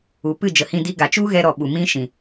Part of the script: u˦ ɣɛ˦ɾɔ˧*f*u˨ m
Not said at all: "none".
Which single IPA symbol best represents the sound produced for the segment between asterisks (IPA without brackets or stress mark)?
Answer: ɓ